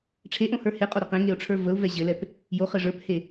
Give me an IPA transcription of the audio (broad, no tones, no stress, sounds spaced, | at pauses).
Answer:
ʈ͡ʂʰ e ʔ õ h ə˞ h e qʼ o ɾ e q ẽ ŋ e ʊ̯ ʈ͡ʂʰ ə˞ v ə ʊ̯ v ɛ ʑ ɘ l ɛ p | j o χ ɘ ʐ ə˞ p h e